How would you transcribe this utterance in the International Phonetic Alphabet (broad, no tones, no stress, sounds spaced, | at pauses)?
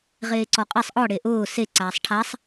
ʁ eː ǀ ɔ qʼ ɛ sˤ ʔ ɔ ɽ e ʔ ʊː s e ǀ aː sˤ ʈʰ a sˤ